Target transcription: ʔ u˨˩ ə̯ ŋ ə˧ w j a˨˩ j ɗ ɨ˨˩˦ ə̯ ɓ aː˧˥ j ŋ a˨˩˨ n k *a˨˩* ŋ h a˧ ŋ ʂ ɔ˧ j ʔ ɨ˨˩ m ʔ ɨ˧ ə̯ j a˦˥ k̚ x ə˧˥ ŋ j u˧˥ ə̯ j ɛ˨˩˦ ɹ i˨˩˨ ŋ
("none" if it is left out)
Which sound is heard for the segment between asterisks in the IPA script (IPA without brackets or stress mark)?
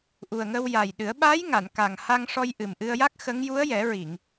a˨˩